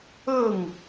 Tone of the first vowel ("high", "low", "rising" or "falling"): falling